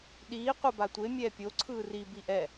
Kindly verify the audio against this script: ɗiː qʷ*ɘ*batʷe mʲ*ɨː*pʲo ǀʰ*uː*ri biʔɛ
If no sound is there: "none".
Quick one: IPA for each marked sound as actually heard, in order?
ɛ, ɛː, ɯː

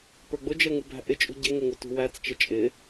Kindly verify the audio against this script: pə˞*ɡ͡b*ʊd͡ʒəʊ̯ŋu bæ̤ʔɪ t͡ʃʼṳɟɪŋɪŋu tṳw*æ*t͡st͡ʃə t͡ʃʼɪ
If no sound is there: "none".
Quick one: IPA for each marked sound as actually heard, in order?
ɡ͡b, æ

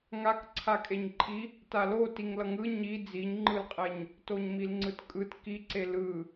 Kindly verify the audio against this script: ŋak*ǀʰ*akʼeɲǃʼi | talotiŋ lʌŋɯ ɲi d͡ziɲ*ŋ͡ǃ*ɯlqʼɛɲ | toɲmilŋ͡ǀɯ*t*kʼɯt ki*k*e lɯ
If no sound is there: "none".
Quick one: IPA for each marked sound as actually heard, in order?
ǀʰ, ŋ͡ǃ, t, ǀ

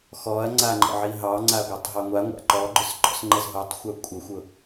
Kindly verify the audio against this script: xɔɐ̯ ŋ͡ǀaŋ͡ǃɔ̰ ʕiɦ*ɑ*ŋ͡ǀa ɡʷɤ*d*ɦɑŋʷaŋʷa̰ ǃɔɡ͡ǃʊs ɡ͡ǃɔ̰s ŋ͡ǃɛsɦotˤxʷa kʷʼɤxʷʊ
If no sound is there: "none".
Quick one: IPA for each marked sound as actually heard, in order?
ɑ, tˤ

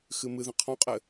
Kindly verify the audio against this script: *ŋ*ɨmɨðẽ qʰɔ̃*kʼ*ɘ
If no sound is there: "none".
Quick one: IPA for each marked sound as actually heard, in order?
x, qʼ

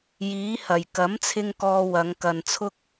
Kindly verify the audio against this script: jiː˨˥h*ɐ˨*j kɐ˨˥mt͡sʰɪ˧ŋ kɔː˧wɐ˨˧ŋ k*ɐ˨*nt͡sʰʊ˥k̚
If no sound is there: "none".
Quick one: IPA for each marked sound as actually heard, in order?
ɐ˨˩, ɐ˨

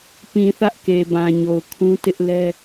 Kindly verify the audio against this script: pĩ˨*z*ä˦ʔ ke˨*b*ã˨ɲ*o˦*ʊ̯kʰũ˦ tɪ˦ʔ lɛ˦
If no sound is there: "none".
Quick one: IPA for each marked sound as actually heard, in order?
θ, b, o˨

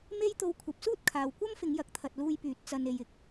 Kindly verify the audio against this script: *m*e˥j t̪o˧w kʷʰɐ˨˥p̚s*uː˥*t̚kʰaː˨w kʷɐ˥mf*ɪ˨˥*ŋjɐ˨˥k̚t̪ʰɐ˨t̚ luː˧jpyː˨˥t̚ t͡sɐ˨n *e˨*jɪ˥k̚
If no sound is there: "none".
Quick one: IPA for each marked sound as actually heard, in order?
m, uː˥, ɪ˨˧, e˨

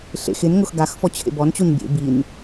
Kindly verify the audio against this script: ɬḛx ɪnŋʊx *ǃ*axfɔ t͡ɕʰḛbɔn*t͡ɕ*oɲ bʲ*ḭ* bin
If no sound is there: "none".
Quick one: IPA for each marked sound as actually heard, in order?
ɡ, t͡ɕ, ḛ

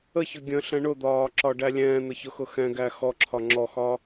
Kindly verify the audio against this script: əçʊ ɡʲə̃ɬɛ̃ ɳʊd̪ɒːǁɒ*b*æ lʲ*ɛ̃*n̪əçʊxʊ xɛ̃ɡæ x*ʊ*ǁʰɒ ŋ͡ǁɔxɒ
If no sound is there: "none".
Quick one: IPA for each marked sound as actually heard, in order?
ɖ, ɛ̃ː, ɔ

